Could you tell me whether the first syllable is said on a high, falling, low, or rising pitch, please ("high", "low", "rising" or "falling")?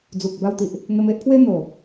low